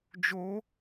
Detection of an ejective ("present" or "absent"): absent